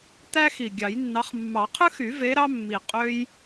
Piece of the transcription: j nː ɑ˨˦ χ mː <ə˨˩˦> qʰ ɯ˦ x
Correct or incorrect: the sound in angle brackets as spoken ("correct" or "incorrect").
incorrect